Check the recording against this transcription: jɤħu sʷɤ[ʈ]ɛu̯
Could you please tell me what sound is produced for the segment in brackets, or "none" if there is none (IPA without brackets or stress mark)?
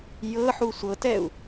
t